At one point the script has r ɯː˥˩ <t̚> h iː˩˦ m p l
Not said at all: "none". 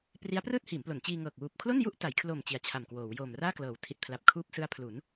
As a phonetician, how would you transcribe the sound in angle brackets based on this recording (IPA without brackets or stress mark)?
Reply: t̚